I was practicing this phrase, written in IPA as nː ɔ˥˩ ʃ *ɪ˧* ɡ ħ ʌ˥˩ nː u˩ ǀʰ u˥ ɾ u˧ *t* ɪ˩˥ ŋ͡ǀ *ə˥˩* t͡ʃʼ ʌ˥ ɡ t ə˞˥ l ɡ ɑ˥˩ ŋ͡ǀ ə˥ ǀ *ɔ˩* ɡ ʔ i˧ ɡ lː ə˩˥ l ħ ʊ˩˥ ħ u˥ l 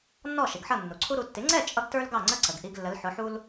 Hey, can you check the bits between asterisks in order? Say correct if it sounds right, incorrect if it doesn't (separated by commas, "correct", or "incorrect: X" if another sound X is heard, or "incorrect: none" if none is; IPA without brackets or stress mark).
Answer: incorrect: ɪ˩, incorrect: tː, incorrect: ɛ˥˩, incorrect: ə˩